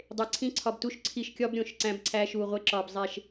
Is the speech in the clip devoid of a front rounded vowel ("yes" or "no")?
yes